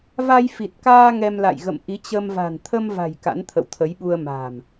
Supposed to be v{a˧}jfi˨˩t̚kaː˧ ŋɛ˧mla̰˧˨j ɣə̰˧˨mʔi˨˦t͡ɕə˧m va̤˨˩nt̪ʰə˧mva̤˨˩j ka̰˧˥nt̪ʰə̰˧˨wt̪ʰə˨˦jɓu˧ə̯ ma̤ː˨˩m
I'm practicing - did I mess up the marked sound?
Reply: no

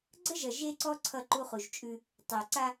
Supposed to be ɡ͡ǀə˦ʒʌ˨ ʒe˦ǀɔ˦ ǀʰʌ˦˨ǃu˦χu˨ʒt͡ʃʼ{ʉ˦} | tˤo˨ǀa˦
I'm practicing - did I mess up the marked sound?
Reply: no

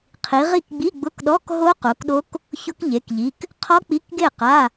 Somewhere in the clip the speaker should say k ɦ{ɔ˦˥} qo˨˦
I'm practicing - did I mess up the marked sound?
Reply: yes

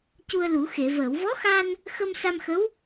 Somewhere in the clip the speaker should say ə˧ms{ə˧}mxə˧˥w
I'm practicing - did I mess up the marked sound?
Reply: yes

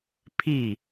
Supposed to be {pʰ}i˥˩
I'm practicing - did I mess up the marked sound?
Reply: no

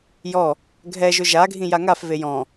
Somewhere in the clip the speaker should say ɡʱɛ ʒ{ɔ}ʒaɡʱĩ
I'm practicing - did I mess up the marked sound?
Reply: yes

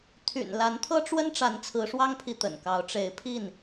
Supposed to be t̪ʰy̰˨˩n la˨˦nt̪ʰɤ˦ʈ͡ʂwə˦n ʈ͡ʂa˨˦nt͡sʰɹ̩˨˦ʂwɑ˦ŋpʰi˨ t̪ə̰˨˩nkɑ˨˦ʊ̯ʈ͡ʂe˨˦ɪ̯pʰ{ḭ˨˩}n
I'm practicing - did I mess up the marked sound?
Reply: yes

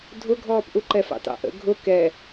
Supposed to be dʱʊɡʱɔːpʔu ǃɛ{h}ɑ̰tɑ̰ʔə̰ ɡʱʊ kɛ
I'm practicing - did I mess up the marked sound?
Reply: yes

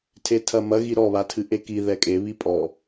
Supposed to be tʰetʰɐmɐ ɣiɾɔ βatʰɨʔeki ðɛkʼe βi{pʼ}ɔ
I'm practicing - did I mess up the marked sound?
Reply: no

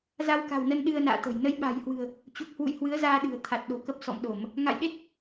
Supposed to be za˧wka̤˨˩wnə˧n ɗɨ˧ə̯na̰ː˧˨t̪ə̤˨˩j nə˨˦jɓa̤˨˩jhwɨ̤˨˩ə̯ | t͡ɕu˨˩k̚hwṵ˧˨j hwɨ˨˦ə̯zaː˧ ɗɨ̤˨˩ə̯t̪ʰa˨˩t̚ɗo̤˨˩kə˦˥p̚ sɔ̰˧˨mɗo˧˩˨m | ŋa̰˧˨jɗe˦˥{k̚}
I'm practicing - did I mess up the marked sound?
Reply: yes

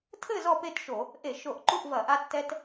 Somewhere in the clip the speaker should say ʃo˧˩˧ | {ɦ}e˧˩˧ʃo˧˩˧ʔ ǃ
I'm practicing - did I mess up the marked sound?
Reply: yes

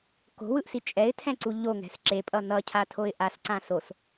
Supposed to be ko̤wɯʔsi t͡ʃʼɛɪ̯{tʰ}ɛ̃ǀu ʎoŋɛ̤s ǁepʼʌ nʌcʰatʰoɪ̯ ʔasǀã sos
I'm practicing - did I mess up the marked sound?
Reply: no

